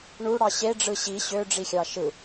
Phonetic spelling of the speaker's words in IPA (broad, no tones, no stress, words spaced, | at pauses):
ɳuɽɑ ɕeɖ͡ʐɯ ɕi ɕøɖ͡ʐixʲɑ ʃɯ